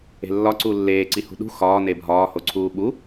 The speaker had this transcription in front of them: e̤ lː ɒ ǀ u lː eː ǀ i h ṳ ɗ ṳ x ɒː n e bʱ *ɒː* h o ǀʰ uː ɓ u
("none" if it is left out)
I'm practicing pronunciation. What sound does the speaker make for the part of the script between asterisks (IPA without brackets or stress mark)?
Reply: ɒː